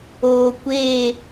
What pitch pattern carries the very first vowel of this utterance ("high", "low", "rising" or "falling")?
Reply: low